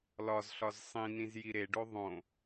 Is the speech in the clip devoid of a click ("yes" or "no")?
yes